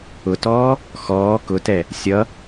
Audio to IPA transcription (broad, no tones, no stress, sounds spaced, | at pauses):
ʊ t ɔː | x ɔː k ʊ t ɛ | sʲ ʌ